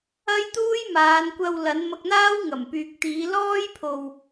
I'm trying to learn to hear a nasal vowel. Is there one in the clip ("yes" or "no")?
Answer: no